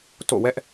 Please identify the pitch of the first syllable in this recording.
falling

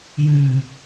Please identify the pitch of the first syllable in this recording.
low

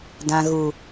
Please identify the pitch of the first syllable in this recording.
low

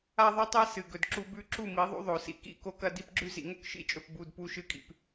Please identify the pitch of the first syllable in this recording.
high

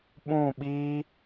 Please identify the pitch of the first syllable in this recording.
falling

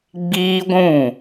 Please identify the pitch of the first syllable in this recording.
high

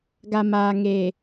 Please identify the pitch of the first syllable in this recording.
low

